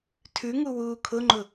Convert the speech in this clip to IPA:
tʰʉŋu wuːkʰʊŋ͡ǃʊ

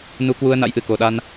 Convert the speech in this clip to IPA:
nu˧kwu˧ə̯ na̰˧˥jʔɨ˨˩ko˨˩ ɗa˧n

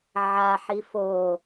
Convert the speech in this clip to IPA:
ʕaħi fo

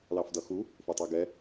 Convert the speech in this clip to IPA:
lɑfdʌxu | fʊtˤɛɡɛ

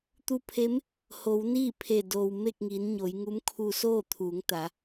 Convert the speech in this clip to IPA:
t̪u˧˥pʰe˧˥m | ho˩˧wniː˥˨pʰe˧˩ doː˩w me˥˨k̚ŋiː˩˧nɲo˩˧j ŋu˧˥mkʰu˧soː˥˨ t̪ʰuː˩˧ŋt̪a˩˧

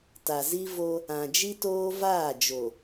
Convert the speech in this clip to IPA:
ta˨zi˦vo˦ | ã˨d͡ʒi˦toː˦ vaː˦˨d͡ʒo˨

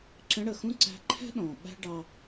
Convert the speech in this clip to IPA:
ǁə̃˧˥ɽə˩xũ˥ ǀæ̤˧ǃʰɛ̤˥ ɗɔ̃˩ ɓæ̤˥ɖɑ˧

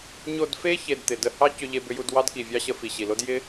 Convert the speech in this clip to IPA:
ɲo˧dfe˦ çe˧dt̪ɪ˨ də˧hɑ˦ cʏ˦ʎe˦bʏ˦ju˦d wɑ˦dki˨vʲɑ˦ɕə˧ fi˨ɕi˨lo˦d jɪ˦

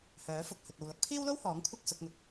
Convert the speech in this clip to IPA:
hœː˨˥fʊ˧k̚ hɵ˧t̚o˧w lɐ˨˥k̚pʰiː˥wlo˥whɔː˨˥ŋ kʷʰɐ˥k̚sʊ˨˥k̚ŋʊ˧k̚

